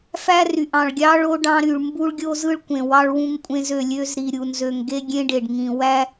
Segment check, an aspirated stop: absent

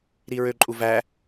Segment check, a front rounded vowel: present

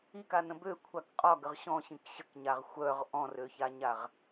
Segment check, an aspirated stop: present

